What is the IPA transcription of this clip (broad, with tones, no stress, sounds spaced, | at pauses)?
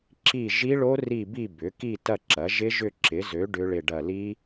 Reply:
ǁ i˦˨ ʒ i˦˥ ɭ o˦˥ r i˦˨ b i˦˨ b ʏ˩˥ k i˦˨ t ɐ˦˨ ǁ ɐ˩˥ ʒ ɪ˦˥ ʒ ʏ˦˨ ǁ ɪ˩˥ z ø˩˥ ɖ ʏ˦˥ ɭ ɪ˦˨ ɖ ɐ˦˨ l i˦˥